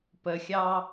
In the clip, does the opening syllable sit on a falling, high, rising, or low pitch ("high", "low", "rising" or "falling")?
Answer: low